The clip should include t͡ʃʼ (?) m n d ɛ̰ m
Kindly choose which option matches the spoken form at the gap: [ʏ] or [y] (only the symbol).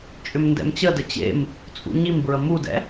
ʏ